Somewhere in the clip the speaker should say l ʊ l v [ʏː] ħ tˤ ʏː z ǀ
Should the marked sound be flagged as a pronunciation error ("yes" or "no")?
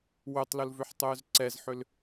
yes